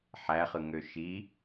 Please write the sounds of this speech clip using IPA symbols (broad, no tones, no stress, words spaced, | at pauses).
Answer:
ħæχɯŋø ʃi